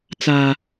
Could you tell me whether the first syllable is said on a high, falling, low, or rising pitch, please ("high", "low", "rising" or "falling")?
high